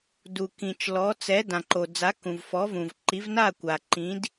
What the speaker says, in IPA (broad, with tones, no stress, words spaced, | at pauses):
du˩kĩ˩t͡ʃ lɔ˩˥ t͡sɛ˩˥ dã˩ǃo˩d͡za˩˥ kũ˩vfɔ˩˥ vũ˩vǃi˩˥vna˥˩kʷa˩ ǃĩ˩˥d